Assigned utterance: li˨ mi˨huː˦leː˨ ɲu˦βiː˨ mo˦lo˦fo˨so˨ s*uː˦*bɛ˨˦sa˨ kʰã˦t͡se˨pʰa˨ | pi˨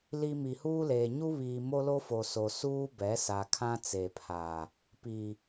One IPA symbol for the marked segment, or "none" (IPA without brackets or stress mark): uː˦